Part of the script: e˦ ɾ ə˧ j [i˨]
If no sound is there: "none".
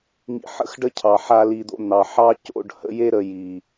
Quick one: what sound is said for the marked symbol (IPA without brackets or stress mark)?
i˨